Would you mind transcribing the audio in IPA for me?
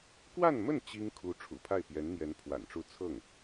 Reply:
k w a˥˧ n m ə˥˩ n t͡ɕ i˥ ŋ kʰ u˧˥ ʈ͡ʂʰ ṵ˨˩ pʰ a˥˩ ɪ̯ p j ɛ˧˥ n n̪ j ɛ˧˥ n pʰ w a̰˨˩ n ʈ͡ʂ u˥˧ t͡sʰ ɤ˥˩ ŋ

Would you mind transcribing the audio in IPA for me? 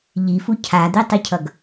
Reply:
ʎ i f u cʰ a d̪ e tˤ ɯ cʰ ʌ ɡ

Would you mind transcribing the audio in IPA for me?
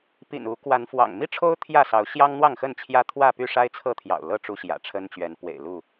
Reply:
p ḭ˨˩ n u˨˦ k w a˨˦ n f w ɑ̰˨˩ ŋ m i˥˨ ʈ͡ʂʰ o˦ ʊ̯ t̪ʰ j ä˥˨ s ɑ˨˦ ʊ̯ ɕ j ɑ˦ ŋ n̪ w ɑ˥˨ ŋ x ə˥˨ n t͡ɕʰ j ä˦ t̪ʰ w ä˥˨ p y˥˨ ʂ a˦ ɪ̯ t͡sʰ ɤ˥˨ t̪ʰ j ɑ̰˨˩ ʊ̯ l ɤ˥˨ ʈ͡ʂ u˦ ɕ j ä̰˨˩ ʈ͡ʂʰ ə˦ n t͡ɕ ɥ ɛ˨˦ n p w ḛ˨˩ ɪ̯ l u˥˨

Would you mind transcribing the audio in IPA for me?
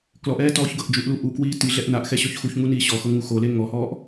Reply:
k l ɔ ʔ ɛː t ɔː ç ɡ ɤ ʔ d͡ʒ u ʔ l u ʔ u k w iː t i ɮ ɛ ʔ n a ʔ x ɛ ɕ ɔ ç x u ç ŋ u n iː ɕ ɔ x ɤ ŋ u x o l e ŋ ɔ h ɔː ʔ

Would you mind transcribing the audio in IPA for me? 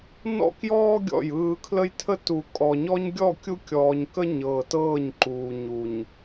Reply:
n ɔ̰˦ k j ɔː˦ ɡʲ ɔ̰˦˨ j ɯː˦ kʰ l ə˦ j tʰ ə˦ t u˨ kʼ ɔ˨ ɲ ɔ˦ ɲ ɡʲ ɔ˦˨ kʲ u˦ kʲ ɔː˨ ɲ k ə˦ ɲ ɤː˨ t ɤː˦˨ ɲ ǃ uː˨ ɲ u˨ ɲ

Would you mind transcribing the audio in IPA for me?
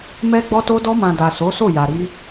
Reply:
m ɛ˧ ɡ͡b ɔ˧ t o˧ d ɔ˧ m ã˨ d a˨ s o˨˦ s o˦˨ j a˨ ɾ i˧

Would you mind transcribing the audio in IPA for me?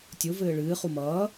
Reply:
tʲ o v ɘː ɭ ɨː χ u m ʌː

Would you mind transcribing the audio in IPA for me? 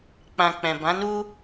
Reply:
k͡p ã˨ k͡p ɛ̃˨ b ã˨˦ n u˦

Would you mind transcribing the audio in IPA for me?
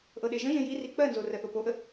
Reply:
ʔ ɤ ɗ e ʒ ə̃ ʒ ẽ j i r i k͡p ɜ n z o r ɜ θ o p o ʔ ə

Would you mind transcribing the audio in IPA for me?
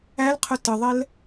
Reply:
æ l qʰ ʊ t ə ðˤ ɛ l

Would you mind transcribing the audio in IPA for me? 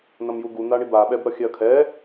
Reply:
n ʌ m j u ɡ u n̪ a ɳ i b a ɓ ɛ b ɾ ʌ xʲ ɛ ɐ̯ kʰ ɛ

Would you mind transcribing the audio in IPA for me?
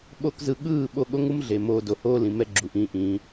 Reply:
ɓ o˦ k z ɯ˧ ɠ ɯː˦˨ ɓ o˧ ɠ o˦ ŋ u˦ m ɮ e˨ m oː˧ d o˨ h oː˦ l ĩ˨ m ɛ˦ ɡ͡ǁ u˨ ʔ ĩː˧ ʔ ĩː˨˦

